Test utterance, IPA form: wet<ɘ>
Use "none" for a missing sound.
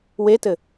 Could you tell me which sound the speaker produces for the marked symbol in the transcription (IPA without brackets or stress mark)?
ɘ